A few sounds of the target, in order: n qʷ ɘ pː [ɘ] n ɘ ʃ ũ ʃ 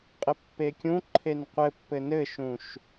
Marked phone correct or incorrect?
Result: correct